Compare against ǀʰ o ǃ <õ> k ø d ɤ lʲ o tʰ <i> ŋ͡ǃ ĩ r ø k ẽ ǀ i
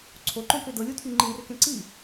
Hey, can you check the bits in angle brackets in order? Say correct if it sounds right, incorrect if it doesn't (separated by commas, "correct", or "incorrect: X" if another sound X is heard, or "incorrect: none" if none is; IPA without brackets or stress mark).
correct, incorrect: y